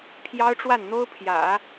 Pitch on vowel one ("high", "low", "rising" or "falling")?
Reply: high